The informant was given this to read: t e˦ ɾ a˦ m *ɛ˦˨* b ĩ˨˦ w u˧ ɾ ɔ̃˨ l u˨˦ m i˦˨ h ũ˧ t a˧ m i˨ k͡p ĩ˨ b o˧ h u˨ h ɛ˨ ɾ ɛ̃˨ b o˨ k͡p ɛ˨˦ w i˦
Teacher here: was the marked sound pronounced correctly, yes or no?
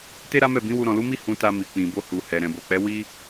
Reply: yes